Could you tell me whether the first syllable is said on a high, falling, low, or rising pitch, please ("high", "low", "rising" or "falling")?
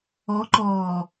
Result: rising